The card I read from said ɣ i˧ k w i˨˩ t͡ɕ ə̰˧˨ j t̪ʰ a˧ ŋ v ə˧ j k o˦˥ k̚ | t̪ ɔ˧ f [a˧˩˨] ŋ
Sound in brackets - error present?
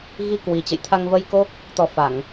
no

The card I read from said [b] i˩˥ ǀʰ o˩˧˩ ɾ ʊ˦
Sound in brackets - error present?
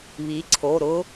yes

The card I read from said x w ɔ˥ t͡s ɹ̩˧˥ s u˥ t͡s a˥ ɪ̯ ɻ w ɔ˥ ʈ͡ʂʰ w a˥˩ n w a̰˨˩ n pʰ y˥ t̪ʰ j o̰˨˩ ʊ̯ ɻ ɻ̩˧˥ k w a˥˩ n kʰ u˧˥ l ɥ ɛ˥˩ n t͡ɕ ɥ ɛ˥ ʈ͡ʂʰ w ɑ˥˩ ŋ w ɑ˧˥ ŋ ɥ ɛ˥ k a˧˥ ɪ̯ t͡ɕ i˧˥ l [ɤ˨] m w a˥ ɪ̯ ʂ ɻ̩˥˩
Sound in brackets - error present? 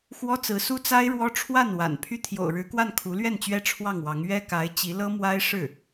yes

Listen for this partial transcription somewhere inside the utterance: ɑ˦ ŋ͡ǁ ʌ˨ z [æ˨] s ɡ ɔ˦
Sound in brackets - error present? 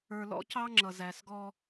no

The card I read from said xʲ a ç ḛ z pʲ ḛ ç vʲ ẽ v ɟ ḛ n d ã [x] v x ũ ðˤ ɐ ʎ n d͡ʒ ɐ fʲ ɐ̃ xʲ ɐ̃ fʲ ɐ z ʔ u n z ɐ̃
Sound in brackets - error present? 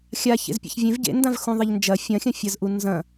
yes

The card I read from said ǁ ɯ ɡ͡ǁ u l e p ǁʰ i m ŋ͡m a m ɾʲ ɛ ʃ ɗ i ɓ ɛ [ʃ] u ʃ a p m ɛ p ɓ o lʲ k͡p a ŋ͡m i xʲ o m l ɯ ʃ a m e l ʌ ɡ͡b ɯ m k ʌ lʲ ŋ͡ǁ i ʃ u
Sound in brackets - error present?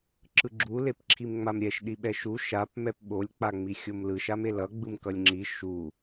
no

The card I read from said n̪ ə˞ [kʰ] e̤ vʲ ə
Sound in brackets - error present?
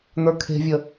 no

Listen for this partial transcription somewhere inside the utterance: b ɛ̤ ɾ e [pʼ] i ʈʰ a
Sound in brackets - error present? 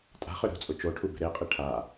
yes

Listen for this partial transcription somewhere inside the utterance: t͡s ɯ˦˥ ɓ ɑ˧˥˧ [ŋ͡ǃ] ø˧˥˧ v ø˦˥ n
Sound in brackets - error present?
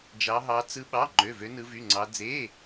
no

